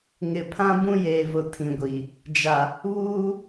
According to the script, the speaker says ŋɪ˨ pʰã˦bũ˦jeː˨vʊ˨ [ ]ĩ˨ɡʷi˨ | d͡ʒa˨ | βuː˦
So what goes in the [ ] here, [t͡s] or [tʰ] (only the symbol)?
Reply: tʰ